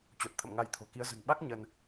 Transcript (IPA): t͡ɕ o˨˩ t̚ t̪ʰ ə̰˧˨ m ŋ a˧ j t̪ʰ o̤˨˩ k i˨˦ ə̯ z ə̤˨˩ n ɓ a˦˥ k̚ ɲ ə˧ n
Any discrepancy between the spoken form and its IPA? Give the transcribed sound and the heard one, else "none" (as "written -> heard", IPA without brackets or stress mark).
none